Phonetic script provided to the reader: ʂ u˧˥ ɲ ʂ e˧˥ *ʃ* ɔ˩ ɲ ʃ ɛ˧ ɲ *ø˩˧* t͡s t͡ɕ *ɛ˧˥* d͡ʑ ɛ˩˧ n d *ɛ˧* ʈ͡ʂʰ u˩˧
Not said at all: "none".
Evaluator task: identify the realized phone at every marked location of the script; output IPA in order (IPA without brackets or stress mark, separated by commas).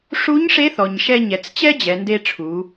θ, ɛ˩˧, ɛ˥, e˧